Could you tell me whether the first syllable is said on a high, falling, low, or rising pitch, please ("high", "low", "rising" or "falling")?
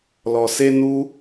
low